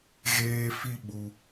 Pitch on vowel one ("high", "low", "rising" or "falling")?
high